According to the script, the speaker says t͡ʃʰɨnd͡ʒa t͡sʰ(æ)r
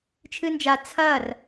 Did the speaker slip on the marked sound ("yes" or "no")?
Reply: yes